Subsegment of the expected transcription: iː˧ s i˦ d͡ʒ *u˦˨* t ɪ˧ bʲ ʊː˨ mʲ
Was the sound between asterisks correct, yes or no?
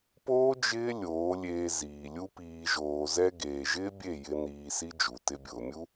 no